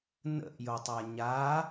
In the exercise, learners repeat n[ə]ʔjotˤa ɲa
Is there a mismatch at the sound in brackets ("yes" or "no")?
yes